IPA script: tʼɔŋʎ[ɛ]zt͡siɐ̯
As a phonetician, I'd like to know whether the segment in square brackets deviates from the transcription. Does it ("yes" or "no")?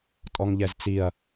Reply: no